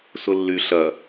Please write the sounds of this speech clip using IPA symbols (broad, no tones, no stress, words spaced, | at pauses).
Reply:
sʊlːy ɬɐ